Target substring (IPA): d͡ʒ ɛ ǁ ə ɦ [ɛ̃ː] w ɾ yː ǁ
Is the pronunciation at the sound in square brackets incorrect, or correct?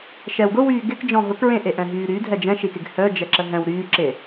incorrect